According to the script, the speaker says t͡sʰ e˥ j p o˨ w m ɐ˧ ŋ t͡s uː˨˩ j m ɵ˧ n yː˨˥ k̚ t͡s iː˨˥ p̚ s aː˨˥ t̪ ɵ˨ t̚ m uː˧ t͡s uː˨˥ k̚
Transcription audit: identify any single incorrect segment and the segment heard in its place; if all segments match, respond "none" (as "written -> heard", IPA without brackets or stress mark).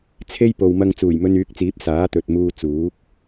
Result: none